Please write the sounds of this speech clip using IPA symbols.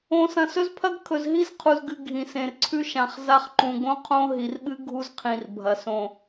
õ˨sɐ̃˨sɵ˦z pʰɐ˦ɡ kʰɵ˨zɦi˦zqʰu˨zɡɨ˨ ɡʱĩ˨sẽ˨rǀʰʉ˦ ʃã˨χza˦χǃũ˨ ɡõ˦qʰõ˦ ɦi˨rɓɨ˦ ɡʱu˦zqʰĩ˨rbʱɐ˨ sõ˨

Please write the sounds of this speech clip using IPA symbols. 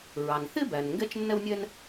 ɹɑ˩nθɪ˥bæ˩n ŋɡɛ˥t͡ʃnːɛ˥wnʲɛ˥n

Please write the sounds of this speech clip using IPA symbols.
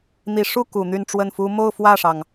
n̪i˨˩ʂu˥˩ ku˨˩n̪y˥˧nʈ͡ʂwə˥˩nfu˥ mo˥˧ʊ̯fwä˥˩ʂɑ˩ŋ

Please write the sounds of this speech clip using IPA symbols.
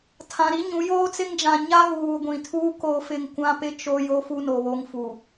tʰã˨ɾi˦ ɲũ˨˦ joː˦t͡sɪ˦ŋd͡ʒã˨ ɲa˦ɣuː˨ɡʷĩ˨tʰuː˦ ko˦fɪ˦ŋ kʷã˦pɪ˦t͡ʃo˦ jo˦fu˦no˨ βo˦ŋfu˨

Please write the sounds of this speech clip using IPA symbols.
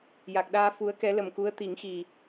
ja˨˩k̚ɗaː˧ fu˧˥ə̯kɛ˧˥ lə˨˩mku˧˥ə̯t̪i˨˩˦ŋxi˨˩

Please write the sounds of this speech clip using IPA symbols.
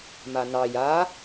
manɑ ja

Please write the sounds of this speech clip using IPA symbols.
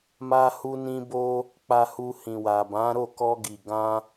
ma˦ hu˧nĩ˧bo˧ | k͡pa˧hu˧hĩ˨wa˨ bã˨˦ɾo˦˨kɔ˧ɡi˨ ɡã˧

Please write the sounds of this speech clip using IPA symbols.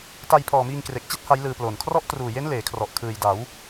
ta˧jpʰɔː˨˩miː˧ŋ kre˨˩k̚t͡ɕi˥˩t̚ ha˦˥jlɯː˧ploː˨˩n kʰrɔ˦˥ʔtruː˨˩je˦˥n leː˩˦kʰrɔ˨˩ʔkʰɯː˨˩jda˩˦w

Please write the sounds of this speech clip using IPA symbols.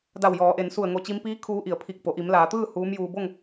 da˧˩wjɔː˩˧ʔe˩˧n su˧˩ə̯ŋo˧˩t͡ɕi˧mpiː˧˥ kʰuː˧˥ʔi˩˧ə̯ pʰi˧˩k̚po˩ ʔi˩˧mlaː˩˧t̪ɯː˥˨ huː˧˥mjuː˧ bo˥˨ŋ

